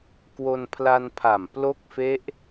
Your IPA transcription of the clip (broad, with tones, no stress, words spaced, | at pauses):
kwo˧npʰla˧npʰa˨˩m plo˦˥k̚fe˦˥ʔ